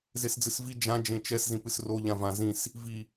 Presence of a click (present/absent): absent